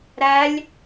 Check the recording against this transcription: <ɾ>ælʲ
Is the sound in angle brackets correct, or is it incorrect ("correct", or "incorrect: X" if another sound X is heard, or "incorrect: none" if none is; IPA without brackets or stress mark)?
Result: correct